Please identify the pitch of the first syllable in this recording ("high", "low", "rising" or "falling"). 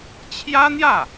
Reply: high